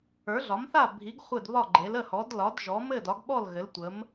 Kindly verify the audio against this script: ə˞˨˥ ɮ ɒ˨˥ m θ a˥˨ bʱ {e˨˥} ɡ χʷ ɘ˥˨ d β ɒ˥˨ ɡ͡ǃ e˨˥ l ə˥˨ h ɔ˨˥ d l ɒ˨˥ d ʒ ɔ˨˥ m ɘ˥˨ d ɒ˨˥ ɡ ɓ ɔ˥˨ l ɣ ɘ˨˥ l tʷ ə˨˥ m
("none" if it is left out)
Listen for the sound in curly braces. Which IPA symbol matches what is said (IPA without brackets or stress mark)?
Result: i˨˥